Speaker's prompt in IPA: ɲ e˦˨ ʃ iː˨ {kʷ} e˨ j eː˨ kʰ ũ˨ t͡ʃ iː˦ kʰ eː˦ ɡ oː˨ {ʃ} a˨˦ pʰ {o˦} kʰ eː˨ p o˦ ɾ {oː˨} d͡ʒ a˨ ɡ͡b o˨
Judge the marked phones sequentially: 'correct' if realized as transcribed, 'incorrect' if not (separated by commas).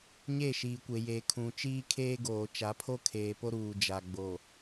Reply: correct, incorrect, correct, incorrect